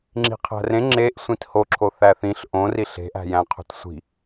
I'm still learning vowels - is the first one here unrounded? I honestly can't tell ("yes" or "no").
yes